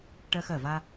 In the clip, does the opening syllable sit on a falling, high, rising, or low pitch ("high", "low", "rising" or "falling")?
high